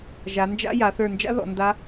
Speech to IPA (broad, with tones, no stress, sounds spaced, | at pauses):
ʒ a˩˧ n d͡ʒ a̰˦˥ j a˩˧ θ ə˞˧˩ n d͡ʒ a̰˦˥ ð ɔ̰˩˧ n d a˦˥